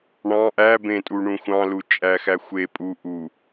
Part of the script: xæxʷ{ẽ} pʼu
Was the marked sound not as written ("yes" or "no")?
yes